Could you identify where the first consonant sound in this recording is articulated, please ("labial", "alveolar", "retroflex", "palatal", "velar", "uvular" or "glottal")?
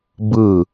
labial